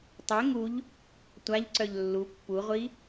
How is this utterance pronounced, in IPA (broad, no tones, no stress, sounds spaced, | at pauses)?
tˤ ɛ ŋ u ʎ | tʷ a ʎ ǀ œ ʎ lː u pː u ʁʷ i